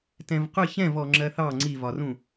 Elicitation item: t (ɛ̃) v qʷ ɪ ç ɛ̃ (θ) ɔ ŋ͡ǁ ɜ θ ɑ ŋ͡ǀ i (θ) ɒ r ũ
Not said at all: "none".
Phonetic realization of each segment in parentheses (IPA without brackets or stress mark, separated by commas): ɛ̃, v, v